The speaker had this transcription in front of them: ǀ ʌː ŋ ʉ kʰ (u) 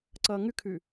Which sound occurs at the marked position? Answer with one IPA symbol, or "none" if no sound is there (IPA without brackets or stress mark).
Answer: ʉ